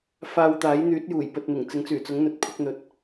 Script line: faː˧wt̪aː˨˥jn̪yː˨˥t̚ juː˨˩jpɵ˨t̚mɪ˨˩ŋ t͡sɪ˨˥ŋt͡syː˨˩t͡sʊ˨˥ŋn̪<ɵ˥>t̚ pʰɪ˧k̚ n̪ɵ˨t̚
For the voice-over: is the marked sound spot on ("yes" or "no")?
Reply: no